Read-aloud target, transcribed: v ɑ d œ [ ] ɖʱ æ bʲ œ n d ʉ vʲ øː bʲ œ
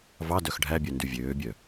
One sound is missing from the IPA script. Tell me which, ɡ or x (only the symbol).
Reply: x